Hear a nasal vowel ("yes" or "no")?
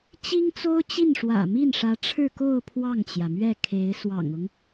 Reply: no